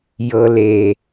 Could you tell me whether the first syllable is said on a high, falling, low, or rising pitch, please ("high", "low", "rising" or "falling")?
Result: low